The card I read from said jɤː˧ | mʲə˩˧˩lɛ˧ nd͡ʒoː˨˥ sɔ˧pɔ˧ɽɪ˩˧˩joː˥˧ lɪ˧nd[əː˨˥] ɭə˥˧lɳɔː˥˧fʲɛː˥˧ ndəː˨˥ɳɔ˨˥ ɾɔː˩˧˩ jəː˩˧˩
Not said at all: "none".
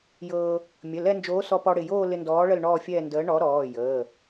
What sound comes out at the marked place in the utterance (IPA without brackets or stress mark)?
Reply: ɔː˨˥